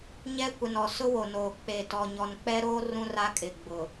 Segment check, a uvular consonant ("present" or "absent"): absent